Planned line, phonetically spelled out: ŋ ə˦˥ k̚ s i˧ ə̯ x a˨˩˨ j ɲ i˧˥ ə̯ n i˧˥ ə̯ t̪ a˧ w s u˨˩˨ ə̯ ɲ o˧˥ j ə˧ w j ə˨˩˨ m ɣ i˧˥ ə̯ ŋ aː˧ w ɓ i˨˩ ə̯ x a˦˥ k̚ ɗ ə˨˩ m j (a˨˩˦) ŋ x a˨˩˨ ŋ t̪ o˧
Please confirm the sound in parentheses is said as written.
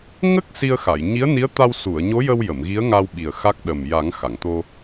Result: yes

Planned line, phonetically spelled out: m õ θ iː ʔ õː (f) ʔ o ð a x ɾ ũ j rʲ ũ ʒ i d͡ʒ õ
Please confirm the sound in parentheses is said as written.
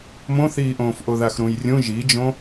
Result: yes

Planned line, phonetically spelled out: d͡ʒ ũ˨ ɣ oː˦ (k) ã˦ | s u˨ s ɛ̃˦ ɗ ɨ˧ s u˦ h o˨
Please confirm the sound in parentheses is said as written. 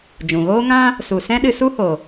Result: no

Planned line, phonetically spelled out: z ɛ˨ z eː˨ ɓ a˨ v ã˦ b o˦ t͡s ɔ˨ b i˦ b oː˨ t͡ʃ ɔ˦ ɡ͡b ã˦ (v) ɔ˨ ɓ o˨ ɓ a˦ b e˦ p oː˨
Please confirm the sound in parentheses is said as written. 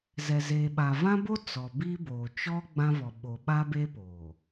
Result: yes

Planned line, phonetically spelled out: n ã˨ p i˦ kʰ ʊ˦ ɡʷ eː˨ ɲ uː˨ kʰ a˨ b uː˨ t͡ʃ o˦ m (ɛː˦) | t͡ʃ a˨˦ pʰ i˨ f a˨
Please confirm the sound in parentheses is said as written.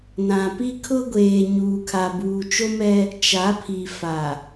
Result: no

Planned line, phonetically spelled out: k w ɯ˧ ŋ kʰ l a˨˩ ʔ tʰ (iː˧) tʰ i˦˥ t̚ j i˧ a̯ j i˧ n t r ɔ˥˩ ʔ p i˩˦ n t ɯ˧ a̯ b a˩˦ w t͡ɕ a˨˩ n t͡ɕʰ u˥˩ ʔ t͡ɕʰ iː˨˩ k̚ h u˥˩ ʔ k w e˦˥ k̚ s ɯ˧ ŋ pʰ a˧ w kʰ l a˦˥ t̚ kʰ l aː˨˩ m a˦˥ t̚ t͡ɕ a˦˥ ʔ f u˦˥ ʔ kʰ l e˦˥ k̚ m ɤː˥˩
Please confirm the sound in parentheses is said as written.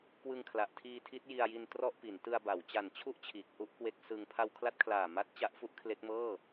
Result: yes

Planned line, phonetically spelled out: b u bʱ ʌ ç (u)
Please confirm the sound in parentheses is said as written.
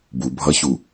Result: yes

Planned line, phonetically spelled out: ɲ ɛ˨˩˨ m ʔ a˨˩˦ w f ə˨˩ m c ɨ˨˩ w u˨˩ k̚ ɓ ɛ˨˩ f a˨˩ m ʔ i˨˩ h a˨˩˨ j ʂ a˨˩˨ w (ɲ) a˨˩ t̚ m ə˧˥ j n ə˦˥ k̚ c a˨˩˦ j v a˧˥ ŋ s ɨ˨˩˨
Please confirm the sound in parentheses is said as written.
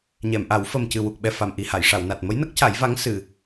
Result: no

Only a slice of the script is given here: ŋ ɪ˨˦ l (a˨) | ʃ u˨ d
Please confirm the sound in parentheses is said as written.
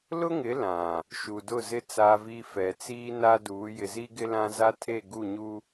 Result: no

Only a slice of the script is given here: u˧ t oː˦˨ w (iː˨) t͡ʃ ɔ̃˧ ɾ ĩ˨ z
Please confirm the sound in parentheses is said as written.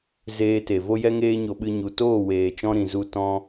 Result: no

